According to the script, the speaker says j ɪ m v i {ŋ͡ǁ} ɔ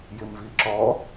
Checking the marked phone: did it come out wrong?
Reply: yes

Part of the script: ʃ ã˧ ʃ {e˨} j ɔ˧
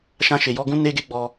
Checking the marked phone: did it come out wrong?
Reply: no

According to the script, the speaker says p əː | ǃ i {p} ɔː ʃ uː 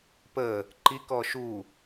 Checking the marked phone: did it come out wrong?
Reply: yes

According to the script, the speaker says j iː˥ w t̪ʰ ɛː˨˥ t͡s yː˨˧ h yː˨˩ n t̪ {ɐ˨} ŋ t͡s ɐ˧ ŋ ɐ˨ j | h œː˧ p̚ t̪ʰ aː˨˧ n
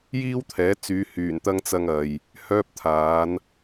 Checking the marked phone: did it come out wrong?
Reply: yes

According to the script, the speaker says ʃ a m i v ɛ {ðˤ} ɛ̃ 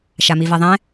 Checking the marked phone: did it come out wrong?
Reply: no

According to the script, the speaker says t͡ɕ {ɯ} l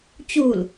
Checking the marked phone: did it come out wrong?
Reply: yes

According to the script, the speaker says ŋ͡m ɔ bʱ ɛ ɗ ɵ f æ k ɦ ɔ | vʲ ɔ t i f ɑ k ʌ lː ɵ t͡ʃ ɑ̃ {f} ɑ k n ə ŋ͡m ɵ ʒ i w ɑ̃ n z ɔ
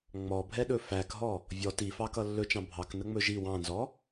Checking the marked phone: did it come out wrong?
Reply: yes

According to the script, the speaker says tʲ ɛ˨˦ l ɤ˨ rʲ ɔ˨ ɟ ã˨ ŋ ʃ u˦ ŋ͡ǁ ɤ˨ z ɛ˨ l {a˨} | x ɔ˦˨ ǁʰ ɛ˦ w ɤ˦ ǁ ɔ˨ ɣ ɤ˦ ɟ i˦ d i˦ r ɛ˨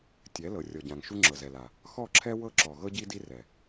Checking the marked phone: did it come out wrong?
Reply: no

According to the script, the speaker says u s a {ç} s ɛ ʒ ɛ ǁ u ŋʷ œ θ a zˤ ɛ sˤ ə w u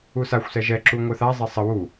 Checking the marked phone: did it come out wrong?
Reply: yes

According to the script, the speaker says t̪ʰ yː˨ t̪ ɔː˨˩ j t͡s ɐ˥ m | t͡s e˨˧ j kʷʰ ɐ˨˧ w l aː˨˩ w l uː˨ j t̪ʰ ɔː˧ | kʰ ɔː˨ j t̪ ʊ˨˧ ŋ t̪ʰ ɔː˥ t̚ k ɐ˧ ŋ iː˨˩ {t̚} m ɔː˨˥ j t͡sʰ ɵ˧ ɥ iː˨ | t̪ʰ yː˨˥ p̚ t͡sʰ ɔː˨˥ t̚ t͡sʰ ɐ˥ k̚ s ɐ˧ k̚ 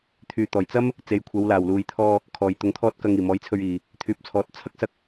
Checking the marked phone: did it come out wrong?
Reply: yes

